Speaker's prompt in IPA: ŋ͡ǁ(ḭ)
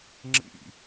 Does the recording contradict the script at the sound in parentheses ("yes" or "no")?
no